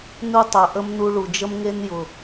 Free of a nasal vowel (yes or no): yes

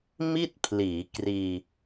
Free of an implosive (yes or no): yes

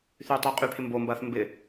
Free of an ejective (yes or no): no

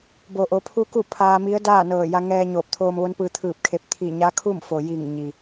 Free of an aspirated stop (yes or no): no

